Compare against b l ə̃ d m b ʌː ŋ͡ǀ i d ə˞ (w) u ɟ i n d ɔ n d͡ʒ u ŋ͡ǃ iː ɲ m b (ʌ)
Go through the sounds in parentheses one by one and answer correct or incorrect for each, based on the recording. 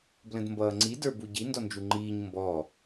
incorrect, incorrect

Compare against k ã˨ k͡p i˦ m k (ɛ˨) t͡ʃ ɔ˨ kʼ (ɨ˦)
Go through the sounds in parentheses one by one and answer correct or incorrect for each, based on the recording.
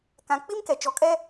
correct, incorrect

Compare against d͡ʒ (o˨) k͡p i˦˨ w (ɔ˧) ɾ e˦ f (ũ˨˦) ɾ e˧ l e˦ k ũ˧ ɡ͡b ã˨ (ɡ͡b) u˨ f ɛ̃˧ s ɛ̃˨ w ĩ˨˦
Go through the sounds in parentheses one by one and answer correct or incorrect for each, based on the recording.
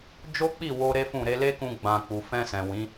incorrect, incorrect, incorrect, incorrect

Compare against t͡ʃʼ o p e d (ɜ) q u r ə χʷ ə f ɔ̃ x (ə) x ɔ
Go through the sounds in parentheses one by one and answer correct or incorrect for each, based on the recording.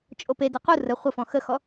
correct, correct

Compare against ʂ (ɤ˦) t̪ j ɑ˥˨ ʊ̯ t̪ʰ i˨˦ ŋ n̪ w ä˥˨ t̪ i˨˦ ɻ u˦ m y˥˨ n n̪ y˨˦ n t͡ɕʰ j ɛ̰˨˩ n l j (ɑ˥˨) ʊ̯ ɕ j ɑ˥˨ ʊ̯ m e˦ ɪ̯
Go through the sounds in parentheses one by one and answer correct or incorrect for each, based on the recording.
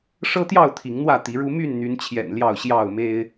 correct, correct

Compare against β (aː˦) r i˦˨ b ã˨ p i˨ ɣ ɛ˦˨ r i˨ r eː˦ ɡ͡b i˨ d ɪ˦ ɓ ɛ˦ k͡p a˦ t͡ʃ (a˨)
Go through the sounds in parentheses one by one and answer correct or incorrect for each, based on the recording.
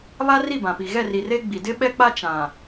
incorrect, incorrect

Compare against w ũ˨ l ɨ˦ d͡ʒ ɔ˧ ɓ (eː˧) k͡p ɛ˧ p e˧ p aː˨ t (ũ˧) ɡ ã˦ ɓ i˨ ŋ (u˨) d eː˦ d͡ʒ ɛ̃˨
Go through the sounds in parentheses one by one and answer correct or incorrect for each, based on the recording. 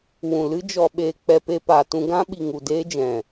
correct, correct, correct

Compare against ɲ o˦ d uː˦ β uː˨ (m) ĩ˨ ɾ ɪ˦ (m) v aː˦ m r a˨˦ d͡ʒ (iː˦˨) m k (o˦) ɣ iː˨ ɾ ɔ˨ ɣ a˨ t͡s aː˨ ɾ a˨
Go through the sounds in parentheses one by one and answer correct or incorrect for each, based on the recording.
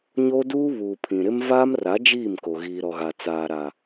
incorrect, correct, correct, incorrect

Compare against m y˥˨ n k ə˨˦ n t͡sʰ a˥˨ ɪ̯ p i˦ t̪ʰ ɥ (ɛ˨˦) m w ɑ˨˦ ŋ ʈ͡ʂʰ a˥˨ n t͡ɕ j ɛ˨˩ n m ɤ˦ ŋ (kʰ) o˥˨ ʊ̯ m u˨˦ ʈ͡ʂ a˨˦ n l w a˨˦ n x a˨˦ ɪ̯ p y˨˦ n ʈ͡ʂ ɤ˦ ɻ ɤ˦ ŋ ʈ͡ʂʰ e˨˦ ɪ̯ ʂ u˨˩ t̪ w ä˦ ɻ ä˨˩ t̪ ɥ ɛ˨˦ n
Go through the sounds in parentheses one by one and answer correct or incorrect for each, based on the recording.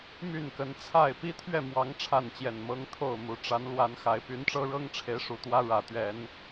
incorrect, incorrect

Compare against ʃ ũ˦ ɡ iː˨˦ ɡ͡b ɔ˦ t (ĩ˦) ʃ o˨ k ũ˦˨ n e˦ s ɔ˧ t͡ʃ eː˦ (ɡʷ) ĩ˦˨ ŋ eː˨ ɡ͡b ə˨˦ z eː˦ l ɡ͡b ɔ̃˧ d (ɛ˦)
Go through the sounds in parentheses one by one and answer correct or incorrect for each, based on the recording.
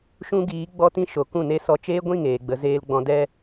correct, correct, correct

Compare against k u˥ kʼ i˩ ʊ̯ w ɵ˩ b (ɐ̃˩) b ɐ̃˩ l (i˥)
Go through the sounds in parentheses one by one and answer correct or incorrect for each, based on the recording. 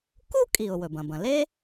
correct, incorrect

